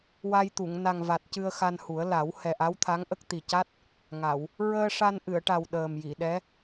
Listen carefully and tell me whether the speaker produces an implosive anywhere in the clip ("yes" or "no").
yes